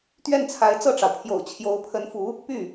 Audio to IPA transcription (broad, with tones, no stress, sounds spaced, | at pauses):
t̪ ɥ ɛ˥˩ n t͡sʰ a˧˥ ɪ̯ t͡s ɤ˥˩ ʈ͡ʂ ɑ˩ ʊ̯ pʰ j o̰˨˩ ʊ̯ t͡ɕʰ j o˧˥ ʊ̯ pʰ ə˧˥ n f u˧˥ | p y˥˩